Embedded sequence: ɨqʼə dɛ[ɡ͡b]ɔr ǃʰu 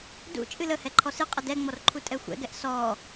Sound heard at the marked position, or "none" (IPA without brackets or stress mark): ŋ͡m